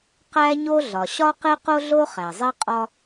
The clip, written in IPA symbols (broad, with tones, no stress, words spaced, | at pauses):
qæ˥ɲo˥ ɮɒ˩ɕɒ˥ qe˥qo˥ɮo˥ χæ˩zˤe˥qʼɒ˥